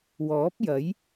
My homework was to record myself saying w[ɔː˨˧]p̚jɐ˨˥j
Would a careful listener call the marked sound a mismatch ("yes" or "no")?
yes